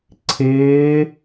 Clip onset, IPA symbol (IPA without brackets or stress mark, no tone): ǀʰ